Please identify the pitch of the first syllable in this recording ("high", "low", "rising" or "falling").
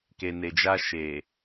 low